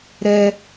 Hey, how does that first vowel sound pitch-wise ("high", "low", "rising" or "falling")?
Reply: high